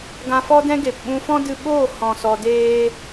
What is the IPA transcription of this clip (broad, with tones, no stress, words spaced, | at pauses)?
ɡã˧fɔ˦dɛ̃˦ɡe˨p ɓũ˧fɔ̃˦ dɨ˧ɓoː˦˨hɔ̃˨ sɔ˧deː˦